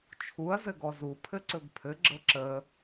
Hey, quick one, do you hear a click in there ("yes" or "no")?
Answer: yes